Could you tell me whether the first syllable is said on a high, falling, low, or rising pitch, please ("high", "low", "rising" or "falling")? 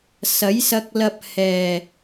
rising